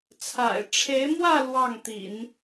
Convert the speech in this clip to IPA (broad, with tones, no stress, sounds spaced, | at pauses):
t͡sʰ a̰˨˩ ɪ̯ ʈ͡ʂʰ e˧˥ ɪ̯ m w ä˥˧ l w ɑ˥˩ ŋ t̪ ḭ˨˩˦ n